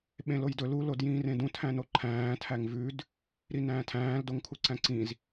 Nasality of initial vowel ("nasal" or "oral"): nasal